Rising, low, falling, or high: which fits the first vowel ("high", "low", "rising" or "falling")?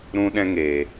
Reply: high